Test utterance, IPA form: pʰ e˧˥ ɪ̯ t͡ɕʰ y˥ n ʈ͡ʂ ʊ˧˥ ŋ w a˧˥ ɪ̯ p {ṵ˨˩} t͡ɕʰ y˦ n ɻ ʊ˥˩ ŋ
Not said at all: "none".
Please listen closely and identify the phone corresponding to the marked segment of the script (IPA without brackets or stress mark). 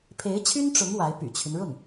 y̰˨˩